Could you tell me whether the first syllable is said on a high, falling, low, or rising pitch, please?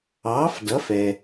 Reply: rising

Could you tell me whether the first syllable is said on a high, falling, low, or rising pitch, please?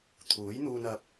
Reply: rising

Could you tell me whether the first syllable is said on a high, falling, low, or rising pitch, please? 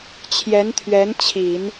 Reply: rising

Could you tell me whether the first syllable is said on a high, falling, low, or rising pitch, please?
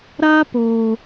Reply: high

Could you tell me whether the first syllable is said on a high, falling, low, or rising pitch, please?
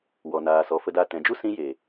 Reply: low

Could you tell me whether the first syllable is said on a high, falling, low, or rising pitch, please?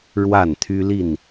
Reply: falling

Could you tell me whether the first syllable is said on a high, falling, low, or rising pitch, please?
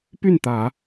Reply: falling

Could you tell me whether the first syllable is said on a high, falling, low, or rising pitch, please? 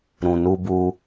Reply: low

